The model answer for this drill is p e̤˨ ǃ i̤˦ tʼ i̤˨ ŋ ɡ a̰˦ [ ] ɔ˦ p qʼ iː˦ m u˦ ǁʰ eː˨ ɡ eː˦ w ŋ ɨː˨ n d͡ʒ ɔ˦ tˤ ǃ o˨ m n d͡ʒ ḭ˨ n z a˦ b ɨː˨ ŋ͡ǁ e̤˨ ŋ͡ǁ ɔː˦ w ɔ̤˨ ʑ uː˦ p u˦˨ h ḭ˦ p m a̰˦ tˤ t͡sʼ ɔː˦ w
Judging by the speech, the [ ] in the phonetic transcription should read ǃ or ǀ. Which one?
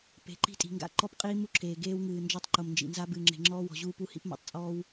ǃ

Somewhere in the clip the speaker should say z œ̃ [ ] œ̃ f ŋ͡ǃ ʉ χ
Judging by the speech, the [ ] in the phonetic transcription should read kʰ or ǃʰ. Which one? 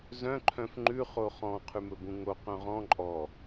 ǃʰ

